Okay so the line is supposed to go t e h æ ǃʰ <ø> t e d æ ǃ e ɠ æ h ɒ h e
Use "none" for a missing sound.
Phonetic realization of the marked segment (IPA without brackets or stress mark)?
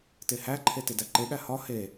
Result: e